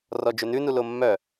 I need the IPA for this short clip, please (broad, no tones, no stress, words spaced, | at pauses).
rɔd͡ʒønʉ nulomːœ